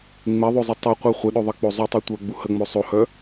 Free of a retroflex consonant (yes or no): yes